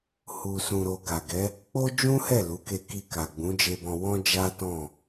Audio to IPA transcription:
h u˧ s ũ˧ ɾ o˧ ɡ a˨ ɡ ɛ˨˦ | k͡p o˦ d͡ʒ ũ˦ h ɛ˦˨ l u˨˦ k e˧ k i˧ k a˨ ɡ͡b ũ˨˦ d͡ʒ e˧ b ɔ̃˧ w ɔ̃˦ d͡ʒ a˦ t ɔ̃˦˨

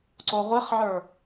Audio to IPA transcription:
ǀ o ʁʷ e χ ʕ ə˞

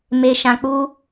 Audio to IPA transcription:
m e˧ ʃ ã˧ k͡p u˦

